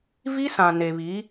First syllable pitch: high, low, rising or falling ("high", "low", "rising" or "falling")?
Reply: high